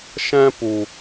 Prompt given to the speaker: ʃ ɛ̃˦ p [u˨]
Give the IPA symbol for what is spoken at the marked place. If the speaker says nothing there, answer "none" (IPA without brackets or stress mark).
u˨